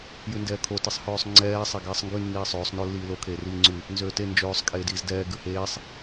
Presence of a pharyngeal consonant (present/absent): absent